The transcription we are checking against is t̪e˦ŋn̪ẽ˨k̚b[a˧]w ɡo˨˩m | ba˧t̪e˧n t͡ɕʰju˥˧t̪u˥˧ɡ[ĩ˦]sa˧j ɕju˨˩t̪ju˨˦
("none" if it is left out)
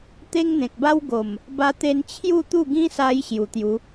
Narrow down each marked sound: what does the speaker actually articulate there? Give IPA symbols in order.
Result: a˦, ĩ˦

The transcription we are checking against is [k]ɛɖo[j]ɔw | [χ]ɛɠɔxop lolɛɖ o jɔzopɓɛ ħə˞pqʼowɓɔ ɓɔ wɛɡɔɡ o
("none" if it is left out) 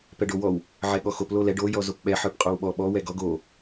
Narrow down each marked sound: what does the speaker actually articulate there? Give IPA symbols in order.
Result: p, w, ʕ

